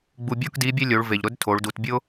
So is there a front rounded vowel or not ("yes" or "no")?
no